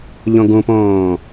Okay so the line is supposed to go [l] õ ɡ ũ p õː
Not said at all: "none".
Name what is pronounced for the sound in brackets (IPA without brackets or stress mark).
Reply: ʎ